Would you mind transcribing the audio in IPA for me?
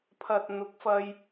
pʰ ɐ˨ t̚ n̪ ʊ˨˥ k̚ f ɐ˧ j

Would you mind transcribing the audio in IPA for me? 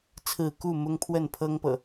t͡sʰ ɹ̩˥˨ k u˥˨ m ʊ˦ ŋ pʰ w ə˥˨ n pʰ ɤ˦ ŋ p ɤ̰˨˩

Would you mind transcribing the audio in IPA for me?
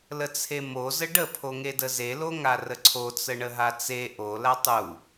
l ə t͡sʰ e m o z ə ɖ ə pʰ o ŋ e d ə z e l o ŋ a r ə ǀʰ o t͡s ə ɳ ə ɦ a t͡s e ʔ o l a tˤ u

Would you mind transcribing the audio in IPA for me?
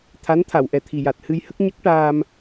t̪ʰ a˧˥ n t̪ʰ a˨˩˨ w ʔ ɛ˨˩ t̪ʰ i˨˩ j a˨˩ t̚ h ɨ˧ j h ə˦˥ k̚ ɲ ə˦˥ k̚ ʈ aː˧ m

